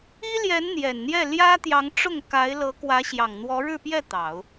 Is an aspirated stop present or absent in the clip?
absent